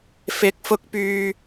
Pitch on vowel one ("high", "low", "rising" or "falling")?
rising